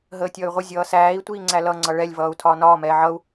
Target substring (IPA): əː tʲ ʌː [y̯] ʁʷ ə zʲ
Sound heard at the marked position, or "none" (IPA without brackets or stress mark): y̯